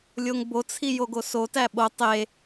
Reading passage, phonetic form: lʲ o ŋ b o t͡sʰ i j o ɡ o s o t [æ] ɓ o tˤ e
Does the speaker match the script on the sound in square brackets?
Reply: yes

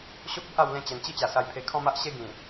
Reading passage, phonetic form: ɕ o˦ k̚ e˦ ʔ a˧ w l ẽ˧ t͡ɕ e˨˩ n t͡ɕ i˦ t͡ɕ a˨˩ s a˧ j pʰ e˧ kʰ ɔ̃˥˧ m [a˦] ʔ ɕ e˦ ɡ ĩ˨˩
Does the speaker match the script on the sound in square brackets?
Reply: yes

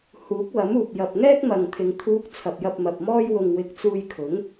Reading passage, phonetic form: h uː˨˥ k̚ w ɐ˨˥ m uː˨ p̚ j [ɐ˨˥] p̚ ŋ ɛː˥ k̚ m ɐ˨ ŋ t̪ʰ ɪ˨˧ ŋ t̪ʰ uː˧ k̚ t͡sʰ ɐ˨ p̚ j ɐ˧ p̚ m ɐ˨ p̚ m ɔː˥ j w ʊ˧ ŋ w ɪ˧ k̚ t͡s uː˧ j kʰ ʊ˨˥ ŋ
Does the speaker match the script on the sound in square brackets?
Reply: no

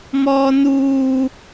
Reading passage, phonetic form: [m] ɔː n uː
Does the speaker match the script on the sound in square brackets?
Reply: yes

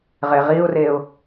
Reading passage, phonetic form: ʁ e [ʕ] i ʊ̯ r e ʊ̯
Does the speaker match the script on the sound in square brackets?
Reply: no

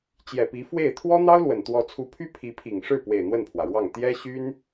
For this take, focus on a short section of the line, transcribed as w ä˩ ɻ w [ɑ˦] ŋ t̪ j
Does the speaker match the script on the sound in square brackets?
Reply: no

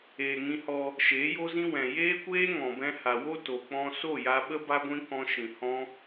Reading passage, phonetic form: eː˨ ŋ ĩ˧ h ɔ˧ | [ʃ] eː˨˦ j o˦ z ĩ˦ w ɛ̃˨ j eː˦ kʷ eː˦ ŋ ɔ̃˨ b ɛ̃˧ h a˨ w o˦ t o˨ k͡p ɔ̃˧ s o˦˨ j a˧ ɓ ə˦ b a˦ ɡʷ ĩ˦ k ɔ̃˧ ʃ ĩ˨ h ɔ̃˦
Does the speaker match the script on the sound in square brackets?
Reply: yes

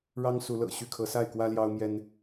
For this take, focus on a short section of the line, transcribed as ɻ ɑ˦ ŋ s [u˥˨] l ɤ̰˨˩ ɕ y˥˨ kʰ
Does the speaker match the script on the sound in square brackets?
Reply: no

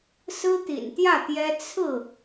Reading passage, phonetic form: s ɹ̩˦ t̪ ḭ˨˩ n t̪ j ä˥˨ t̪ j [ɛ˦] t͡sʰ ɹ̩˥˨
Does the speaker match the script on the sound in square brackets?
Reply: yes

